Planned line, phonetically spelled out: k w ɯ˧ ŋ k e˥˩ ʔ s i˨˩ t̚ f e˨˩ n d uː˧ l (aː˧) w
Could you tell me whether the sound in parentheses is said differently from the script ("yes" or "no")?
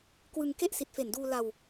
yes